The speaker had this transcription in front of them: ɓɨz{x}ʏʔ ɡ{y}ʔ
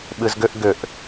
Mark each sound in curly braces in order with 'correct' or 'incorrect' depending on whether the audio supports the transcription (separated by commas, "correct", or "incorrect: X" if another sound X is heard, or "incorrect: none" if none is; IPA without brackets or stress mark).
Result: incorrect: ɡ, incorrect: ʏ